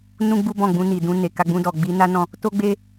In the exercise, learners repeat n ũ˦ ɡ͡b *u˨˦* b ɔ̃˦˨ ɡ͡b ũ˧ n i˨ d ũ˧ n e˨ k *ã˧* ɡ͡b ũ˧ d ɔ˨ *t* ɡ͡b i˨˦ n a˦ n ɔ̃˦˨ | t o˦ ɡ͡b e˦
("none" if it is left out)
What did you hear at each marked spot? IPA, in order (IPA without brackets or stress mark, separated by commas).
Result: u˦, a˧, none